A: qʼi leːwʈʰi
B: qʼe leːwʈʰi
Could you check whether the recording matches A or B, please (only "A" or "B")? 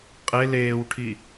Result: B